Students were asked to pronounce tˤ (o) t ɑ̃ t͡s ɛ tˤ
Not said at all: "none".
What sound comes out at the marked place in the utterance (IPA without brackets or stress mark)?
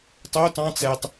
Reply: o